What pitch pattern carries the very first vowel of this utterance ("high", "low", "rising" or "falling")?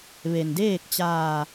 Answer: low